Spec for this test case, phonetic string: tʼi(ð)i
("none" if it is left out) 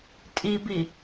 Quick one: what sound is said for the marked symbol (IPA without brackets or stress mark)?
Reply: b